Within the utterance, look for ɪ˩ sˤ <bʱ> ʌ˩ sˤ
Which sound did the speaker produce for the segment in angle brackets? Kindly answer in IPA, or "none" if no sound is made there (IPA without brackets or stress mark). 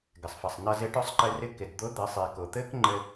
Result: f